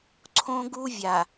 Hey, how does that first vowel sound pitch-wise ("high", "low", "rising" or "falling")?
high